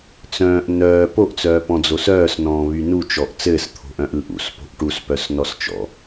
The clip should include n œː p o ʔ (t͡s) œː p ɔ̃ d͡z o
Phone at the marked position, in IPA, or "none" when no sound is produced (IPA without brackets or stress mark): t͡s